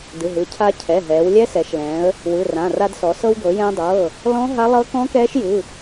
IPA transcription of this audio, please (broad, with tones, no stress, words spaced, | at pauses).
dɯ˩˧˩ɦɯ˩˧ cʰa˧cʰɛ˩˧˩ ɦɛː˩˧wlʲɛ˦˥sɛ˩˧ʃ lɛ̃ː˩˧ə̯ | wɯ˩˧˩rã˩˧˩ ra˧dsɔ˩˧ sɤ˧wɡɤ˩˧jɛ̃ː˧dˤɤː˩˧˩ | lɔ̃˦˥ ɦa˦˥ lˠɤ˦˥ kɔ̃˦˥kɛː˦˥ʃjɯ˩˧˩